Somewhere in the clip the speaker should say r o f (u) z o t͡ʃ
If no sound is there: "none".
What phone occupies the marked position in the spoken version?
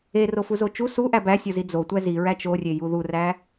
u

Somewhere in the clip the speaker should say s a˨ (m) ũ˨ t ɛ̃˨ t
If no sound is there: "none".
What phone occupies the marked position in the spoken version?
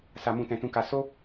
m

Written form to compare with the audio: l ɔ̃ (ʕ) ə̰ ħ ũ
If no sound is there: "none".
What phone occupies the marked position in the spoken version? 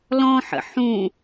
ħ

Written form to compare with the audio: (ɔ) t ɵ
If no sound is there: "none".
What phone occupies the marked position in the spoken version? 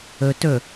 ɵ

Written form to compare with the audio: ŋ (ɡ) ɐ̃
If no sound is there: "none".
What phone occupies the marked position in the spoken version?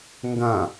ɡ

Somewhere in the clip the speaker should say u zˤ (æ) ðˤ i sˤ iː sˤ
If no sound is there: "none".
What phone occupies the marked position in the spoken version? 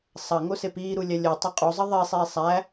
ə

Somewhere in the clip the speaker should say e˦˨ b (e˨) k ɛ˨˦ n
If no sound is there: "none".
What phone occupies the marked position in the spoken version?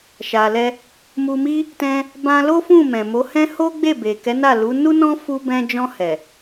e˨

